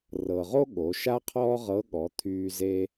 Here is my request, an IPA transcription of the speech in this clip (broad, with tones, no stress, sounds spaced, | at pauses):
r ɤ˩ ʁ o˥ ɠ o˩˧ ʃ a˥ qʰ ɔː˥ ʁ ɤ˧˥ ɠ ɔ˩˧ t̪ʰ yː˧ z e˧